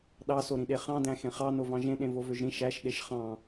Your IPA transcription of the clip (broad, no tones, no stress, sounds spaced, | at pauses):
ɗ ɑ s o ɾ ĩ ɗ e χ ɑ̃ d æ̃ x ẽ χ ɑ n o v ɑ̃ ʒ ẽ ɗ ẽ v o v ø ʒ ɾ ĩ ʃ æ ʃ ɗ e ʃ χ ɑ̃